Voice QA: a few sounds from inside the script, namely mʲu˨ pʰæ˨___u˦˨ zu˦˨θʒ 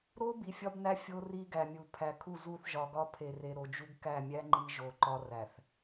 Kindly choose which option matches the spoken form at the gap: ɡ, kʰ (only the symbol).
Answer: kʰ